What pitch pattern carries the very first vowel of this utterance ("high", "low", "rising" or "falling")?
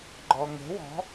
low